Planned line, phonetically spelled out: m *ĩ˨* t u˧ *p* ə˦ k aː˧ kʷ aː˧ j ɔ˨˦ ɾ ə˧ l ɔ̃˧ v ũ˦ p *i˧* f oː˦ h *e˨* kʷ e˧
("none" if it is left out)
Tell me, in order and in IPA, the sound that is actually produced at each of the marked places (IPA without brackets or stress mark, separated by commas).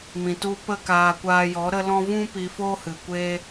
ĩ˨, p, i˧, ɨ˨